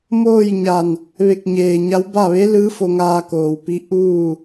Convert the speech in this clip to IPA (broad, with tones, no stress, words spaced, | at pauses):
moː˥˨j ɲa˧˩n | ʋe˧˩k̚ɲeː˩ɲa˧˥w ba˥˨ ʋe˧˥lɯː˧˥ fo˧ŋaː˧koː˩wpi˧˥ ʔuː˥˨